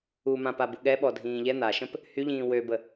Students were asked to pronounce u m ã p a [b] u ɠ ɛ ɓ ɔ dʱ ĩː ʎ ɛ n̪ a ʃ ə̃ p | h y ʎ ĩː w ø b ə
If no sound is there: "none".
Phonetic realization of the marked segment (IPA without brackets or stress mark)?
b